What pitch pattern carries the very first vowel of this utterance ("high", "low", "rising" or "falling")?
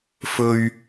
low